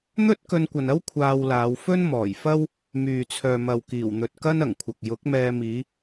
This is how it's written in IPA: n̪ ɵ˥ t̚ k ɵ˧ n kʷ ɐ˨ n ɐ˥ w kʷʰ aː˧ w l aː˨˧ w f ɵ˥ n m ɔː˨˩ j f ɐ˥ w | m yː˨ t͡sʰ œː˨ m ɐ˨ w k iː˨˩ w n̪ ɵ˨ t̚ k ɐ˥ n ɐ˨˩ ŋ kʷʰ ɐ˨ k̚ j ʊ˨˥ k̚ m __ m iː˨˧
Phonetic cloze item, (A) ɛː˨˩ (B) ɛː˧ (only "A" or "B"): B